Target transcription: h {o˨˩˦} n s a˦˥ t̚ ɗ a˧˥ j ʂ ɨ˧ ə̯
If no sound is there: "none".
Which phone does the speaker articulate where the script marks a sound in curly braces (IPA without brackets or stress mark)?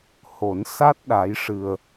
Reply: o˨˩˦